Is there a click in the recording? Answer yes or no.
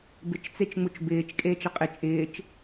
no